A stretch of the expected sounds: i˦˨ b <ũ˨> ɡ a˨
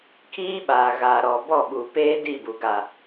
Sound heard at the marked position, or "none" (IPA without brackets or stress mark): u˨